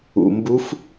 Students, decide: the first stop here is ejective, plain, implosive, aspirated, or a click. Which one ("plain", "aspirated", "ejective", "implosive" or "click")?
plain